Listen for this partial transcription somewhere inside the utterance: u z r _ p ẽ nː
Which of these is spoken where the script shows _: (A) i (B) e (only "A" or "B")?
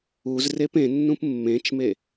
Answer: B